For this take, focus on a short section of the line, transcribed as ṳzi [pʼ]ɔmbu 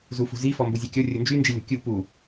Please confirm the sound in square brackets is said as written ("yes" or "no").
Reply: no